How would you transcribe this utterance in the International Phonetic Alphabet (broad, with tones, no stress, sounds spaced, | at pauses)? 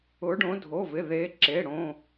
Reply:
ʊ˧˥ ɖ õ˧˥ dʱ o˧˥˧ v ɪ˧˥˧ ð e˧˥ ǁ e˧˥˧ ɽ õ˧˥˧